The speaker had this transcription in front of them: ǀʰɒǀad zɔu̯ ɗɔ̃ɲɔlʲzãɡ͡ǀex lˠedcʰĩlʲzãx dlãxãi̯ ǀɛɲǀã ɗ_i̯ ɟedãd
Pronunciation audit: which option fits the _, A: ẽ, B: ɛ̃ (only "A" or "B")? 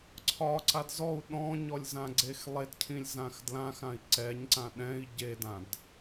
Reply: B